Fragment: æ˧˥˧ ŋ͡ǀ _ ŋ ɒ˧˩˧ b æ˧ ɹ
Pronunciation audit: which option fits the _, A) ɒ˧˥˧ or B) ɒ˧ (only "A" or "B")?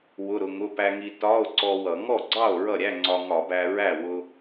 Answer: B